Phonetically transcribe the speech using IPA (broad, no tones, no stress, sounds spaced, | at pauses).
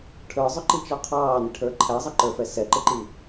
ʈʰ ə˞ zˤ ʊ ǃ i t͡ʃ ɔ qʰ ɑː n ɪ ʈʰ ə˞ ǃʰ æ zˤ ʌ ǃ ə˞ f ɛ s ɛ ǃ ɪ ǃ i